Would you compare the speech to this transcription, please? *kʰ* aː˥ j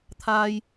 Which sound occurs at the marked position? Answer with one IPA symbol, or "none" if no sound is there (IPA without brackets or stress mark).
t̪ʰ